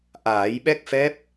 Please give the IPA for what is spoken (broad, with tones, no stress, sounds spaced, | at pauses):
ʔ aː˨˩˦ j ɓ ɛ˦˥ k̚ f ɛ˦˥ p̚